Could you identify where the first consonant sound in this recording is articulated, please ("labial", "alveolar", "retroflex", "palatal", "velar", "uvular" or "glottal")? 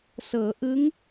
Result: alveolar